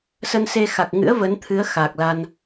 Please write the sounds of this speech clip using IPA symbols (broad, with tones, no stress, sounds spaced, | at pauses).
s ə˧ n s e˧ x a˨˩ k̚ ŋ ɨ̰˧˥ ə̯ v ə˨˦ n t̪ʰ ɨ˨˦ ə̯ x a˨˩ k̚ l a˧ n